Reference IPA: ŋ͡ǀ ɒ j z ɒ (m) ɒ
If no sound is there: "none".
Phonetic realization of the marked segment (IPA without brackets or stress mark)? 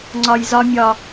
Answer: mʲ